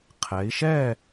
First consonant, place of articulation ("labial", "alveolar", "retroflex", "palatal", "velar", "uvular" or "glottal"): uvular